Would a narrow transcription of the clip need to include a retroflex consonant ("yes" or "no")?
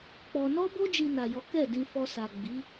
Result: no